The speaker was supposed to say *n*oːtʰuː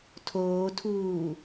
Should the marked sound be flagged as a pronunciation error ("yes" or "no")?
yes